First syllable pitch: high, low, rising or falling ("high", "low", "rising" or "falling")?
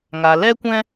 low